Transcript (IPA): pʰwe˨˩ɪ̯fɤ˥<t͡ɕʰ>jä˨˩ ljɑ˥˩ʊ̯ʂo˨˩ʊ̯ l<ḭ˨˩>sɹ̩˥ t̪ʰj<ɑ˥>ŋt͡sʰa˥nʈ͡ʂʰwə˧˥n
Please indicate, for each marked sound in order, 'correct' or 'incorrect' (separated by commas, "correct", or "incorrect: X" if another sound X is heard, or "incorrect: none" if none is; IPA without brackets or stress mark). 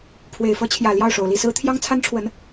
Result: correct, incorrect: i˥˩, correct